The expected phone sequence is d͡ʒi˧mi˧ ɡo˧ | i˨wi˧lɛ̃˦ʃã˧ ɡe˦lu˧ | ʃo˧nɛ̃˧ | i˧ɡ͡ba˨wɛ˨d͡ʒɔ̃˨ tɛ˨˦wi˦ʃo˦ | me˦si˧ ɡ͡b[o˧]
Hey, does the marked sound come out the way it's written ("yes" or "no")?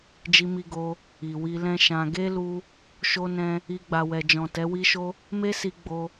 yes